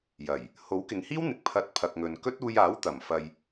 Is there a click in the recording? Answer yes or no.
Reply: no